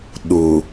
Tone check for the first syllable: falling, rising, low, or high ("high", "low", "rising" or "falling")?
low